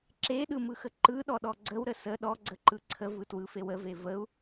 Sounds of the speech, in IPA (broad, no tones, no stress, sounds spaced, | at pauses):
ǁ e ɗ ɯ m ɯ x ə ǃ ɯ ɗ ɔ ɗ ɔ ɡ͡ǀ ə w ɾ ə s ə ɗ ɔ ɡ͡ǀ ə ǃ ɯ ǀʰ ə v ɯ t w ɯ f e w ə v e v ə u̯